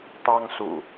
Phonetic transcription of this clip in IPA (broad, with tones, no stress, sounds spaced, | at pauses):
t̪ ɑ˦ ŋ s ṵ˨˩